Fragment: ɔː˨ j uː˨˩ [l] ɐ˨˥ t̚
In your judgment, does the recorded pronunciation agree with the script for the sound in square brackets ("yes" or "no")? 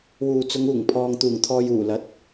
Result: yes